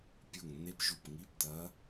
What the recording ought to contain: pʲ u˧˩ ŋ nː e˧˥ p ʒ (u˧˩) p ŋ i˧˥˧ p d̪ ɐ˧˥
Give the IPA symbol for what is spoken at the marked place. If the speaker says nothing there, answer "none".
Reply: u˧˩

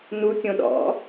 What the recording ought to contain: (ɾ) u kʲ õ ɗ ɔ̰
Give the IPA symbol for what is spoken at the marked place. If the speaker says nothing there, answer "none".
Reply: n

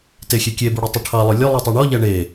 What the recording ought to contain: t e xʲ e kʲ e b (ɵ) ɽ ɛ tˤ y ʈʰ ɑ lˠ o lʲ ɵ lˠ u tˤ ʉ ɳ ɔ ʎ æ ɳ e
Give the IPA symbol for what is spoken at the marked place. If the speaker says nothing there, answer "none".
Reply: ɵ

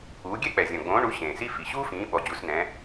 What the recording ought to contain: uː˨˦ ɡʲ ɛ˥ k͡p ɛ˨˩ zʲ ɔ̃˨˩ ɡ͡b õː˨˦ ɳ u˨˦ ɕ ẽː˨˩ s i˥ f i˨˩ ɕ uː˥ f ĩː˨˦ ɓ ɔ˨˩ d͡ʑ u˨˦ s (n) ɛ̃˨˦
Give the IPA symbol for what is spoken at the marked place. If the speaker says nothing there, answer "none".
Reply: n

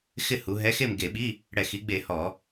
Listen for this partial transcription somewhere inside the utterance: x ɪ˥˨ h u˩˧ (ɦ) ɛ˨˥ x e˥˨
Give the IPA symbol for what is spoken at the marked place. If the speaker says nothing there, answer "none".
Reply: ɦ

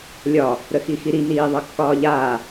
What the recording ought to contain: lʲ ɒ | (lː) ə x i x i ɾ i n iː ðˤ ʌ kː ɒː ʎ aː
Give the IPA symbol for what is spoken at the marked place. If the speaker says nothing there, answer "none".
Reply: ɾ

